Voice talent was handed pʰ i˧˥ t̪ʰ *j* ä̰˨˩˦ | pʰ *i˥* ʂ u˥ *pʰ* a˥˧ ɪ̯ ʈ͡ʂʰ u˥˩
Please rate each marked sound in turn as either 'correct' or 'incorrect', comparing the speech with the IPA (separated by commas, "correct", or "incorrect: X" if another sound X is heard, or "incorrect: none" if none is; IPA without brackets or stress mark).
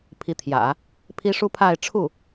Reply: correct, correct, correct